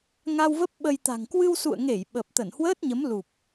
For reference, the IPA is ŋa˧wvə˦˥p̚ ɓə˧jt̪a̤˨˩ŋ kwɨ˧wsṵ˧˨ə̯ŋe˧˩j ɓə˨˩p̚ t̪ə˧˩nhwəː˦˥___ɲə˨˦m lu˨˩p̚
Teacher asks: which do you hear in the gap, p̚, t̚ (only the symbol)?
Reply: t̚